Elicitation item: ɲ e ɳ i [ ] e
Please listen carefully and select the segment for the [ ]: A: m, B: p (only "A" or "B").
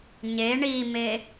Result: A